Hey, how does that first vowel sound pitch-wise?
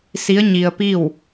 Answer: rising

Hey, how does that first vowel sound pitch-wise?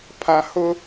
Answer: high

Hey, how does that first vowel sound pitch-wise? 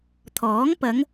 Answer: rising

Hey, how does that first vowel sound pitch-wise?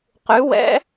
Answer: rising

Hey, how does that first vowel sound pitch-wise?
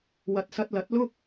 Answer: low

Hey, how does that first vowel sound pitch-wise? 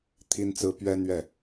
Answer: high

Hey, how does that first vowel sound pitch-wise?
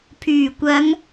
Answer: low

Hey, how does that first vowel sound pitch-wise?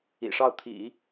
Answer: low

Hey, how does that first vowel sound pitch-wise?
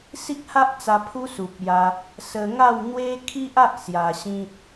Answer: high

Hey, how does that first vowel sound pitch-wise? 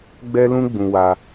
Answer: high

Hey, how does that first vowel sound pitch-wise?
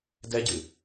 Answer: high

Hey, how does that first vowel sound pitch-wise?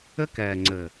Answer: high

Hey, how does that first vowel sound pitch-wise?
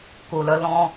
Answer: low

